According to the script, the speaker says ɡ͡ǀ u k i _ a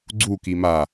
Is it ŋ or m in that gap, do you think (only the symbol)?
m